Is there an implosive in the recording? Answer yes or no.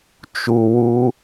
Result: no